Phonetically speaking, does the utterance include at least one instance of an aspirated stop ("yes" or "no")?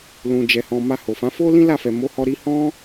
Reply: no